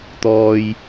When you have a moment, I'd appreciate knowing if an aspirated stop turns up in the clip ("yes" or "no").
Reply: no